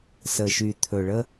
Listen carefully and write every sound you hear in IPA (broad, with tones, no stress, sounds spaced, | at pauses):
s ə˨ ʃ y˨ t̪ʰ ɵ˨ ɭ ə˦